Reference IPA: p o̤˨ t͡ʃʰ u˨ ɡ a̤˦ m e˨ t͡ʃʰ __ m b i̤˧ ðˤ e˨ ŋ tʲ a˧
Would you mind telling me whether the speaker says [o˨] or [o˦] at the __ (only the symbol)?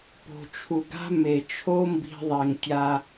o˦